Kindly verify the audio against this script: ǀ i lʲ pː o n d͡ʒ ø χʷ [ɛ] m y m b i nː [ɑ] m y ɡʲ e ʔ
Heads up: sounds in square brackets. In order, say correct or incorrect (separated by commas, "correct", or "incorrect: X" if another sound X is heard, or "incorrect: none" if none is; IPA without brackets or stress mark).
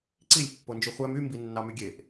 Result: incorrect: æ, correct